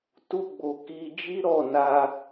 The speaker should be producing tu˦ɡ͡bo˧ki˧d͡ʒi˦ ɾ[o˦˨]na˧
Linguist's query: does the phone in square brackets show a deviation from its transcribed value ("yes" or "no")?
yes